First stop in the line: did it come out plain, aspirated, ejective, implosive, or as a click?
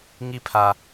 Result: aspirated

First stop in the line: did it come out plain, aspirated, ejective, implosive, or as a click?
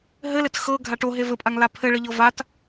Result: plain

